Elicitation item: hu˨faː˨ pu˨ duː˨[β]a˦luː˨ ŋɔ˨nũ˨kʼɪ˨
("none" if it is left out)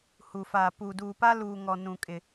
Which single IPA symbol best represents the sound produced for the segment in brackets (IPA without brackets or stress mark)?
p